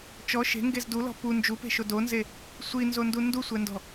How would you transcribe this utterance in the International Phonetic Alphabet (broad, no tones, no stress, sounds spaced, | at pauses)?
t͡ʃ ɔ ʃ e̤ ŋ ɡ e z d u l ɔ̤ p u n d͡ʒ u p e̤ ʃ o d o n z e | sʷ i n z o n d u n d u sʷ ɛ n d ɔ̤